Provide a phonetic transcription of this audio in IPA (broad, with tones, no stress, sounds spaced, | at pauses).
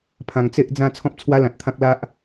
pʰ ã˨˩ ŋ t͡s e˦ ʔ d͡z ã˥˧ t͡sʰ ɔ̃˦ p̚ t͡sʰ w a˦ l ã˨ t̚ t̪ʰ ã˦ k̚ l a˦ ʔ